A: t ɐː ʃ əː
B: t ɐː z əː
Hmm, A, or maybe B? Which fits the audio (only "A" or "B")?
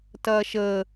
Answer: A